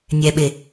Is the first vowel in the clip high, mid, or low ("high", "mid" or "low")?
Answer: mid